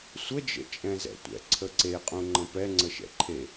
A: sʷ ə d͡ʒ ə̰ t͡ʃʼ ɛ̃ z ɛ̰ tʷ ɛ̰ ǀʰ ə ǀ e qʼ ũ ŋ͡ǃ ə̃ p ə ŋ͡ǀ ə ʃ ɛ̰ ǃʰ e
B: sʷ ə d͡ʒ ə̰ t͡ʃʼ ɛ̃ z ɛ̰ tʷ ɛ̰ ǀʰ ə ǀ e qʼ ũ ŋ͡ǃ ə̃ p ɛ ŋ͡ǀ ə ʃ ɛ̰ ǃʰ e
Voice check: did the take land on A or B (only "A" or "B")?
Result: B